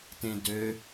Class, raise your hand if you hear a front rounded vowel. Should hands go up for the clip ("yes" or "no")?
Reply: yes